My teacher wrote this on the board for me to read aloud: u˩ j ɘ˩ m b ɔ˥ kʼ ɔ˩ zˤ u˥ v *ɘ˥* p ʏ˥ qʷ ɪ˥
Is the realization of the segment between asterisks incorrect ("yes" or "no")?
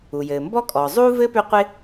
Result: no